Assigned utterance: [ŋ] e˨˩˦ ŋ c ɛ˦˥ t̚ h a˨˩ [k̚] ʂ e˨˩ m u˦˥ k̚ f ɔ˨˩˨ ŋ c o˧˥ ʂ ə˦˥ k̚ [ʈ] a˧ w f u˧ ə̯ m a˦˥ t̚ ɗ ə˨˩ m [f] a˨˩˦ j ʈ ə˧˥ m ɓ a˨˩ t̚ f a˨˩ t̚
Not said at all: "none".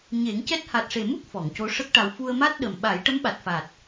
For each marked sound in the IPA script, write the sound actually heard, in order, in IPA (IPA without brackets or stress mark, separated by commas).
ɲ, t̚, ʈ, ɓ